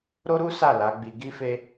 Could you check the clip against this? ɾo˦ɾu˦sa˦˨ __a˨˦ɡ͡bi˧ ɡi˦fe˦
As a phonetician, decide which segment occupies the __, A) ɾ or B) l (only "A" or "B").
B